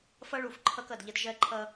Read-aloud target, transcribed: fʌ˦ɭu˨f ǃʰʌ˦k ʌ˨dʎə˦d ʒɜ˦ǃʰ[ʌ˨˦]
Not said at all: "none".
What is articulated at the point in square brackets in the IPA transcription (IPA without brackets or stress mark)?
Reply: ʌ˦